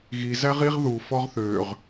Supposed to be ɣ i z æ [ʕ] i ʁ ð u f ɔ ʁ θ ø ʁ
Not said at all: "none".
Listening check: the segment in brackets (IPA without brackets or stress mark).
ʁ